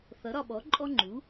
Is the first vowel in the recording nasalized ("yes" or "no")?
no